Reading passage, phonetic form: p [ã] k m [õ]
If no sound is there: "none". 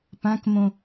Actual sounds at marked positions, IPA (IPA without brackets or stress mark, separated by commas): ã, õ